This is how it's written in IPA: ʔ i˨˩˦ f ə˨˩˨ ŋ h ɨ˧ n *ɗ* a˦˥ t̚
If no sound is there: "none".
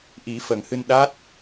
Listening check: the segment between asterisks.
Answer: ɗ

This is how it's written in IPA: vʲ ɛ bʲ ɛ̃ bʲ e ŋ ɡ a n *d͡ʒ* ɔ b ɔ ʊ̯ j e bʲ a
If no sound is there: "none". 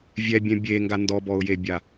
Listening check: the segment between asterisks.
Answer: d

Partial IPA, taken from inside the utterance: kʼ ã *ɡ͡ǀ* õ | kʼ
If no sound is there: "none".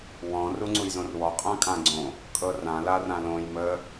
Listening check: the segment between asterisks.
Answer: ɡ͡ǀ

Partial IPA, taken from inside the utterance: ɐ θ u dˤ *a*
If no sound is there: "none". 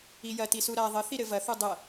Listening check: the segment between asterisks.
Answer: ɐ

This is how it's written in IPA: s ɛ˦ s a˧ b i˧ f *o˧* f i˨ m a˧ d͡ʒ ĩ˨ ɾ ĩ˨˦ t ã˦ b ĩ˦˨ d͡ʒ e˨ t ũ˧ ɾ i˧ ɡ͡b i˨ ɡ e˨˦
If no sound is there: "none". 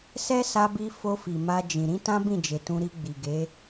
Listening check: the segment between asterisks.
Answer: o˧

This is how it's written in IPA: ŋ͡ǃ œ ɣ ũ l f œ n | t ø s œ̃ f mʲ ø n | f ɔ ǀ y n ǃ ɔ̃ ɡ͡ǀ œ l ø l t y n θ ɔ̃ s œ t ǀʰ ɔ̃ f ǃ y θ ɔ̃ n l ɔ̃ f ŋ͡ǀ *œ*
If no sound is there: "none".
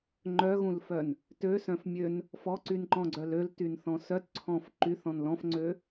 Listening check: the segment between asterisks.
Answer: ø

